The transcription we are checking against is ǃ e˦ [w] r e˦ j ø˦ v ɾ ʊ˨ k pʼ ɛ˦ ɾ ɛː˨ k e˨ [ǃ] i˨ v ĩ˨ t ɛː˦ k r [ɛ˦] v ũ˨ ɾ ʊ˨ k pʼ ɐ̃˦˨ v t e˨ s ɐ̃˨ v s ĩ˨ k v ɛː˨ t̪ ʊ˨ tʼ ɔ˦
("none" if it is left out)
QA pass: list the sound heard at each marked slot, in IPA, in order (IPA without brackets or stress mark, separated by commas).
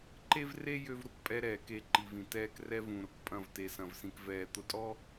v, ǃ, ɛ˦